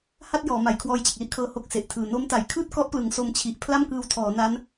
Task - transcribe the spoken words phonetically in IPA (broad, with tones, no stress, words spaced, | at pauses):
ha˥˩t̚jɔː˩˦ma˩˦j kʰwɔː˧jt͡ɕe˨˩k̚li˥˩ʔkʰɤː˧ ho˦˥k̚se˨˩ʔtʰɯː˨˩ no˦˥mta˩˦j kʰɯː˥˩t̚kɔ˦˥ʔplɯ˩˦ŋ so˧mt͡ɕʰi˨˩ʔ pʰla˥˩mkɯː˧wtʰɔː˩˦na˦˥n